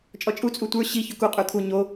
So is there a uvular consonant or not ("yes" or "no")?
yes